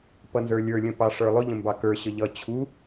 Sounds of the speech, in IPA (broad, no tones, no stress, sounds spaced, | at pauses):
p ʌ n z ə˞ lʲ ə˞ lʲ ə̃ p ɑ ʂ ə˞ lˠ ʊ ʎ ə̃ m b ɑ k ə˞ ɕ ə ʎ ʌ t͡ɕʰ u